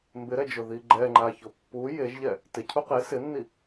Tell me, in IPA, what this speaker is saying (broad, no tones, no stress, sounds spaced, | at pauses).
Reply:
m b ɪ ɾ ɛ d͡ʒ ʊ ð i ɡ͡ǃ ɛ ŋ͡ǃ a ç ʊ pː u j e ʒ ʎ ɛ | t ɪ cʰ u q e s ɪ nː i